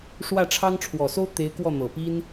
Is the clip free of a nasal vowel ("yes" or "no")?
yes